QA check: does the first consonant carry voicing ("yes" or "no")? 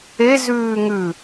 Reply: yes